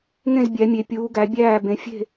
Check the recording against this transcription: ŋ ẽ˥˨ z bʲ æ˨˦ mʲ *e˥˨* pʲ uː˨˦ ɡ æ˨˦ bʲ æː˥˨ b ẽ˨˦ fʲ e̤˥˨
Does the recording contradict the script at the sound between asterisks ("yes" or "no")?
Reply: yes